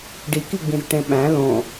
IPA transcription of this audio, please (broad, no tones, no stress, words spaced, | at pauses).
ɖikiɡ͡bĩzʈẽ ɓæ̃ lõ